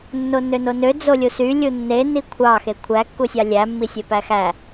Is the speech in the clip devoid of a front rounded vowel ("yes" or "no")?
no